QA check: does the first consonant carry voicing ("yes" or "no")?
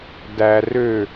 yes